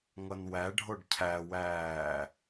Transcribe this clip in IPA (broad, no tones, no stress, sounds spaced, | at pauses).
ŋ ʌ n w æ ɖʱ o ɖ cʰ æ w æː